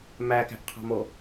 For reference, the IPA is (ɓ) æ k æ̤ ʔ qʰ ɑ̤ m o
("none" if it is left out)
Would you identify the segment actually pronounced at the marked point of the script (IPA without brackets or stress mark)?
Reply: m